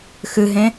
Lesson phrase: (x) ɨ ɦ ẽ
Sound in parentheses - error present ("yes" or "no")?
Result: no